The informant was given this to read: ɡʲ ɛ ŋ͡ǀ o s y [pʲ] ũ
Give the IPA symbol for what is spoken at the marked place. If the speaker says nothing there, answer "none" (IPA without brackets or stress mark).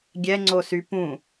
p